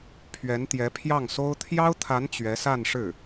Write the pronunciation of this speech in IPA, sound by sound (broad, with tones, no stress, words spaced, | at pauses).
pʰɥɛ˧˥nt̪jɛ˧˥ pʰjɑ˥˩ŋso˥ʊ̯ t̪ʰjɑ˥ʊ̯t̪ʰa˧˥n t͡ɕɥɛ˧˥sa˥˧nʂɻ̩˥˩